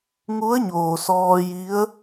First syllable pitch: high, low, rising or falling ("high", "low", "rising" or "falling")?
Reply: rising